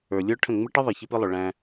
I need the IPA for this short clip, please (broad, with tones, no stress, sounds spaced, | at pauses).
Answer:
ə˞˨ lʲ ə˞˦ ʈʰ ə̃˦˨ ŋ͡m ɪ˦ ʈ ə˦ ðˤ i˨ ç ɪ˦ p ɪ˦ lˠ ʊ˨ ɭ æ̃˦